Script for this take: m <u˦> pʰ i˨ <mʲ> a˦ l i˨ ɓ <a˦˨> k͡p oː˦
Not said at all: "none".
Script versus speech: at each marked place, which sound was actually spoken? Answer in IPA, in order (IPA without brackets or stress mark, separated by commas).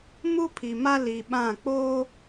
u˦, m, ã˦˨